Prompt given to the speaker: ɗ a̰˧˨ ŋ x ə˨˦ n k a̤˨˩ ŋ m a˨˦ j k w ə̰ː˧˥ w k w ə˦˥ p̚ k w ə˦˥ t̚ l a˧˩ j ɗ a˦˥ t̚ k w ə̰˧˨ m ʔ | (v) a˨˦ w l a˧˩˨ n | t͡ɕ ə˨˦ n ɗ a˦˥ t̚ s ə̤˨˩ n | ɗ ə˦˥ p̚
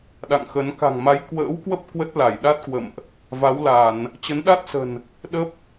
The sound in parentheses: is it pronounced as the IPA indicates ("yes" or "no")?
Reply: yes